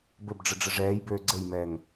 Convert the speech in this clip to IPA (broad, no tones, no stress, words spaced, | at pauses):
bɘbɖ͡ʐəɖ͡ʐə ʐɛːjbøː ɡ͡ǀɘjmɛːŋ